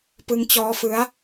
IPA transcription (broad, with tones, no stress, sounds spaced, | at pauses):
p ɯ˦˥ ŋ t͡ɕ ɔː˦˥ f ɯ˦˥ a̯